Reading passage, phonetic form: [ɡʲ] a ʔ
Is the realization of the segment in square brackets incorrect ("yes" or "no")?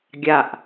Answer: no